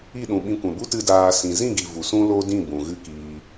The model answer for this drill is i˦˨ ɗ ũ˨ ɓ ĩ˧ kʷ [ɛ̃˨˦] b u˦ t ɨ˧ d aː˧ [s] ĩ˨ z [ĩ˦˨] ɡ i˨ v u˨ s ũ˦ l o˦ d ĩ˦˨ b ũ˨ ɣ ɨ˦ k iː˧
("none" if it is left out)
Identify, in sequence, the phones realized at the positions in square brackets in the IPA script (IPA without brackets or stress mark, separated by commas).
ɛ̃˨, s, ĩ˦˨